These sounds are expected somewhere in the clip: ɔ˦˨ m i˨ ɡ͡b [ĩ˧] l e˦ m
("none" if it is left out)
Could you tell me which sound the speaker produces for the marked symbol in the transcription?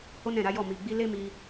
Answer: i˧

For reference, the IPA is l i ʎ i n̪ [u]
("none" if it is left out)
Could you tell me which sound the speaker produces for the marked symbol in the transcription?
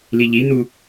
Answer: u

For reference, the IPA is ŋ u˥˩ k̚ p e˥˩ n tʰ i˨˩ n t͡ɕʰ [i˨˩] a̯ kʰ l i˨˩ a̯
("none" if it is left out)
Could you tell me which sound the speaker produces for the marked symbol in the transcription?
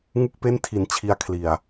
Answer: i˧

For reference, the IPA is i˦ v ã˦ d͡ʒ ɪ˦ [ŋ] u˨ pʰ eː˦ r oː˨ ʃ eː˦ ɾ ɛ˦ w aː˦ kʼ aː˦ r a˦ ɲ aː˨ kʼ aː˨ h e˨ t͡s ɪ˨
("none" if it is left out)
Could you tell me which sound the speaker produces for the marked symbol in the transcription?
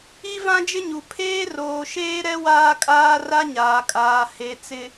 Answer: ɲ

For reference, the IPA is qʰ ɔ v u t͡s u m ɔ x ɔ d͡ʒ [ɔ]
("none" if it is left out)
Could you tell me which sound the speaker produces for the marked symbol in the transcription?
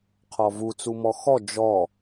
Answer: ɔ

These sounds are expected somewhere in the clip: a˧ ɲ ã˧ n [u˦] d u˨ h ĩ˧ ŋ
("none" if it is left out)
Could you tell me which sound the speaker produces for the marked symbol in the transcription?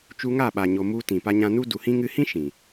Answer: u˦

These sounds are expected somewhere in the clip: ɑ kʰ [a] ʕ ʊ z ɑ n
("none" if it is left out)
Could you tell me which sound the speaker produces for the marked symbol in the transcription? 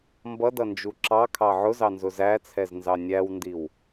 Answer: ɑ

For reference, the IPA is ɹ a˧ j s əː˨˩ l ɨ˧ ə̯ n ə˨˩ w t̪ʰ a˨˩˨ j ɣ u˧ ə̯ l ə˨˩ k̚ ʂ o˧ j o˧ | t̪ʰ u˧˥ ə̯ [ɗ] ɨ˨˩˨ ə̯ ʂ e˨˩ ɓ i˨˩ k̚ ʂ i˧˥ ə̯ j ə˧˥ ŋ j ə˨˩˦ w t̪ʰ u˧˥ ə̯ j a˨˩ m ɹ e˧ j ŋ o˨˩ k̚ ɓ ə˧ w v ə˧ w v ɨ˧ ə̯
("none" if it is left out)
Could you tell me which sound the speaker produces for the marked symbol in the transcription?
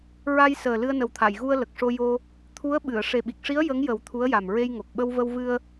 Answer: ɓ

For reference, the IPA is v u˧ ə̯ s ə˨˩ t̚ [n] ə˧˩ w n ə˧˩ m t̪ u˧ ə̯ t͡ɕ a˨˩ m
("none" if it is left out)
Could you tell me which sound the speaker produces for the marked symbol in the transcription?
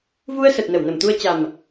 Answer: n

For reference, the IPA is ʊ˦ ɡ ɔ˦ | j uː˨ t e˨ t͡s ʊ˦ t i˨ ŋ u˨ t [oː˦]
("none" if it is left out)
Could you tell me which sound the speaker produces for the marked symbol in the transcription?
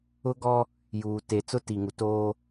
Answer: oː˦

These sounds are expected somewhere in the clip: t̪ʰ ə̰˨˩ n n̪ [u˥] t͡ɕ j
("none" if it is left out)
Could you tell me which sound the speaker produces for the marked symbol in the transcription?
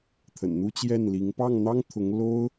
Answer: u˥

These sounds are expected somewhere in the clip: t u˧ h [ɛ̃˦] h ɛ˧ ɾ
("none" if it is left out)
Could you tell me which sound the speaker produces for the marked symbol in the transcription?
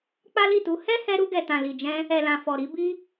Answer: ɛ˦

